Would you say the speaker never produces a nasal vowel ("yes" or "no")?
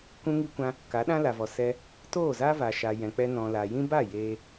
no